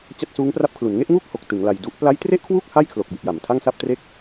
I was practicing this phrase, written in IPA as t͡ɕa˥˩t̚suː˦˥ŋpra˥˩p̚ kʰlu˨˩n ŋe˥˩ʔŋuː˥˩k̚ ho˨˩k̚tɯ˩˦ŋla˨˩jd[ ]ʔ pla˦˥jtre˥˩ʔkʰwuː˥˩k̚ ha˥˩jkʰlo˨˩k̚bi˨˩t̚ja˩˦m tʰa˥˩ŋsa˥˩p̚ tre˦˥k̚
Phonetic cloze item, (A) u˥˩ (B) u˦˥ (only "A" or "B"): B